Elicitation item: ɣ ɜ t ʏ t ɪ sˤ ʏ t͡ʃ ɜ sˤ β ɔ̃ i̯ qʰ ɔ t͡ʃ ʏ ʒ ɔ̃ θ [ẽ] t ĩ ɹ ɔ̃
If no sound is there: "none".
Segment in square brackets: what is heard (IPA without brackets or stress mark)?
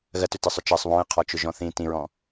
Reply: ĩ